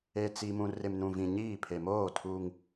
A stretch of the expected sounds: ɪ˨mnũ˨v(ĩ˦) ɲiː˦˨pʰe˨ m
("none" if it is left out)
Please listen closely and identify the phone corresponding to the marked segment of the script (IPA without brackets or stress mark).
ĩ˨